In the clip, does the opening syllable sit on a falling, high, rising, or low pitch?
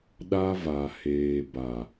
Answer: high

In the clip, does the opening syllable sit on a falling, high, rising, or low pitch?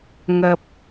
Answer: low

